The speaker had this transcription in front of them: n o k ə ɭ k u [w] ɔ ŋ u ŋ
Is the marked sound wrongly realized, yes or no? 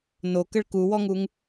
no